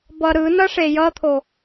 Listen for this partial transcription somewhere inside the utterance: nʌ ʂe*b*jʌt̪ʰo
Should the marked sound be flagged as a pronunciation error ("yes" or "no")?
yes